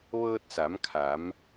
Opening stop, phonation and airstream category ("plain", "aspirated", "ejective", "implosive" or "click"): plain